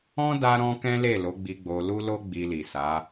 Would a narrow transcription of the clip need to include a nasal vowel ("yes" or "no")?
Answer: yes